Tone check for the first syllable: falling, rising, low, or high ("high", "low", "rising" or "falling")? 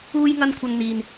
high